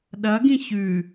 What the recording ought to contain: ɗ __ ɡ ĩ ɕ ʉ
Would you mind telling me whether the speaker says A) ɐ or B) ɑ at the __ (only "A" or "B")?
A